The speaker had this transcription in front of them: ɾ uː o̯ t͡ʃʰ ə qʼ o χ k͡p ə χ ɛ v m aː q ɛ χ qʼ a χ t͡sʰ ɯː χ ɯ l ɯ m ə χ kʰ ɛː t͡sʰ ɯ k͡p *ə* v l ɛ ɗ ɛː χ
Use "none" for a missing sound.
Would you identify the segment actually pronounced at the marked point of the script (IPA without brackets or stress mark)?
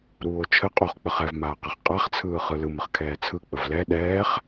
ə